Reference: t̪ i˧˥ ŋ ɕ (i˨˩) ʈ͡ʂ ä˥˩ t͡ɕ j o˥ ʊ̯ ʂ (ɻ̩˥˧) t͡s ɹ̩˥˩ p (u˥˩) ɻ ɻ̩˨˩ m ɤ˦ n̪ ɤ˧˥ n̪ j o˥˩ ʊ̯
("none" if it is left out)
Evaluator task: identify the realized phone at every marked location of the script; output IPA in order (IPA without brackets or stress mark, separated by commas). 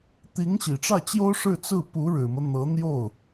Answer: i˨˩, ɻ̩˥˧, u˧˥